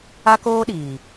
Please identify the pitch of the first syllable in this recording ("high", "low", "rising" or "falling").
high